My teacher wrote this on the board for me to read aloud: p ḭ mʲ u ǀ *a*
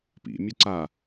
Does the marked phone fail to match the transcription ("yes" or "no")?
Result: no